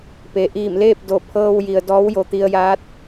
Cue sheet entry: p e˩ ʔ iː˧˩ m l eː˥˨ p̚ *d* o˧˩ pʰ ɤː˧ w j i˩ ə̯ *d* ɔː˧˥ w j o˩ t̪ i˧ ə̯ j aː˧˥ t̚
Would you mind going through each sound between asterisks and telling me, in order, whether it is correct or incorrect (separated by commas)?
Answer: correct, correct